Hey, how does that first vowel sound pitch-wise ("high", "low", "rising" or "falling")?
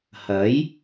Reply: rising